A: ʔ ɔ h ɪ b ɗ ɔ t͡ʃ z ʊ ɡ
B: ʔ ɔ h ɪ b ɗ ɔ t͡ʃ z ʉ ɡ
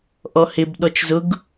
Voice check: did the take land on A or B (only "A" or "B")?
A